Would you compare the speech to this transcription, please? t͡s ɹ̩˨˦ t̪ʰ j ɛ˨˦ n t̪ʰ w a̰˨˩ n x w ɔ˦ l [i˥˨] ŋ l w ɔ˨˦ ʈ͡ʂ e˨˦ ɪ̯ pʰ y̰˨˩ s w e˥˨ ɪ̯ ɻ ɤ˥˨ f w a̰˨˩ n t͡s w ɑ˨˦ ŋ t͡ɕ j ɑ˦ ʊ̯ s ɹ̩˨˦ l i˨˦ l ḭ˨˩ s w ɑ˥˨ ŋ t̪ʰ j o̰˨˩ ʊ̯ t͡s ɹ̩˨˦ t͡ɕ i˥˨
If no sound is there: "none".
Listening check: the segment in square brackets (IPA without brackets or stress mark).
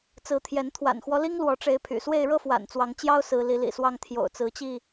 i˦